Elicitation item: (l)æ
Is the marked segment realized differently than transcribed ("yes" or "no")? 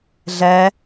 yes